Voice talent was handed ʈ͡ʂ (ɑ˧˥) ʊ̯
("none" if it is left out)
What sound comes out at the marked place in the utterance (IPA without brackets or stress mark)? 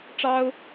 ɑ˥